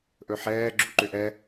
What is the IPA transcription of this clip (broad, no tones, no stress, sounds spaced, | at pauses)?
ʔ ɵ ħ ɛː ɡ͡ǁ u ǃ ʏ ʔ ɛ